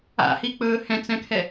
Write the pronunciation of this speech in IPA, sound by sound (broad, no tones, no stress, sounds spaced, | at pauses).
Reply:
a̰ h i k͡p ɵː h ɛ̃ t͡s ɛ̃ kʰ ɛ